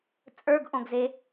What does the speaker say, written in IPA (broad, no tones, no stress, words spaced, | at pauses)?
t͡sʼə˞ɡʔõɡze